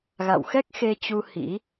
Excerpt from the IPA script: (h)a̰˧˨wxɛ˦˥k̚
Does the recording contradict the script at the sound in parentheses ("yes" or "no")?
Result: yes